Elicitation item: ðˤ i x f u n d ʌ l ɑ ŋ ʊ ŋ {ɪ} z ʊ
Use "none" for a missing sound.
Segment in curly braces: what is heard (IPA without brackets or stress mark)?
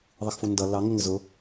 ɪ